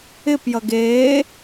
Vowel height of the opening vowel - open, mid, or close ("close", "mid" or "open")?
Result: close